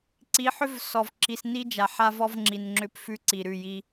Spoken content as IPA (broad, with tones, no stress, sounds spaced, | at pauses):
ǀ i˨˦ ħ ʏ˦ v s ɔ˨ v ǁ i˨ s n i˦ d͡ʒ a˨ ħ a˦ v ɔ˦ v ŋ͡ǁ i˨ n ŋ͡ǁ ʏ˦ p f ʉ˦ ǀ i˨ ɾ ʉ˦˨ j i˦